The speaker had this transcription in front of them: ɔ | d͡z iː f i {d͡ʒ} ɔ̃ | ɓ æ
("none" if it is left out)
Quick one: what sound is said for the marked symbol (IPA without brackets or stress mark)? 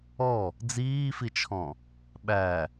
t͡ʃʰ